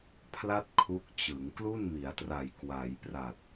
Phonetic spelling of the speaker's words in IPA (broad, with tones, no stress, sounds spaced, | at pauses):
pʰ l a˥˩ t̚ kʰ u˦˥ k̚ t͡ɕ ɯ˩˦ ŋ k l u˥˩ n m i˩˦ a̯ t r a˨˩ j k w a˩˦ j p r a˨˩ t̚